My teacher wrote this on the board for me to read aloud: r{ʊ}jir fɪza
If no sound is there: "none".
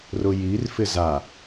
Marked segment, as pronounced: ʊ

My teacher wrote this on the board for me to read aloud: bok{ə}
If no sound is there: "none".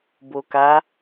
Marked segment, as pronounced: a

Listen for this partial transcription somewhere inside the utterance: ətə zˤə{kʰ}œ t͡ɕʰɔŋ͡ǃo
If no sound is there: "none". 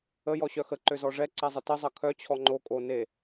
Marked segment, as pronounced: kʰ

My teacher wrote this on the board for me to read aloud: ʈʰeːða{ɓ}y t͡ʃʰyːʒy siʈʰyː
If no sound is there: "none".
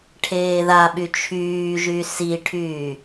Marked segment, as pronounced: ɓ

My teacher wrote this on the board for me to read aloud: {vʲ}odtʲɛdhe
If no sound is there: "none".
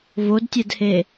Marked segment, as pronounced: v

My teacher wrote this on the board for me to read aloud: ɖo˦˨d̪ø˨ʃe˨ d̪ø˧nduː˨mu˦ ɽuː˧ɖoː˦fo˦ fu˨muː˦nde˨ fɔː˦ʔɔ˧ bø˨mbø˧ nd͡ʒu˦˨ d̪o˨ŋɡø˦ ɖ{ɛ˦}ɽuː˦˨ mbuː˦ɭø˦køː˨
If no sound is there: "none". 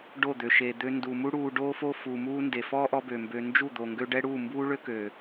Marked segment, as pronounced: ɛ˦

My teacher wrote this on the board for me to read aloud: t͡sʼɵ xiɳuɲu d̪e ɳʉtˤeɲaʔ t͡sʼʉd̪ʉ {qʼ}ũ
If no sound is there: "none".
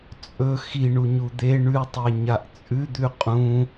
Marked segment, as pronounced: qʼ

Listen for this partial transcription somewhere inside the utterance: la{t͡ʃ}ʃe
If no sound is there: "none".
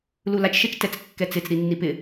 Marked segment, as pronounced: t͡ʃ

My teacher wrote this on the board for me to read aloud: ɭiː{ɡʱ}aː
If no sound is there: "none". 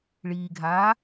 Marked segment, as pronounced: ɡʱ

